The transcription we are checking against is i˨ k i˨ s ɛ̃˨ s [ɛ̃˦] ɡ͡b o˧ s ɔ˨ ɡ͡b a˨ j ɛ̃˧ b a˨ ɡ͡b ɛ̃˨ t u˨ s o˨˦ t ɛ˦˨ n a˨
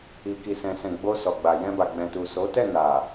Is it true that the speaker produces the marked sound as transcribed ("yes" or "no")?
no